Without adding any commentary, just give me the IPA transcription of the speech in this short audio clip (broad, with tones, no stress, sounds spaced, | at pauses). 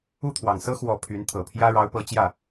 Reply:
u˥˩ t̪ʰ w ɑ˨˩ ŋ s ɤ˥ x w ɔ˧˥ pʰ y˧˥ n t̪ʰ ɤ˨˩ pʰ j ä˥ ɻ ɑ˧˥ ʊ̯ p ɤ˧˥ t͡ɕ j ä˥˩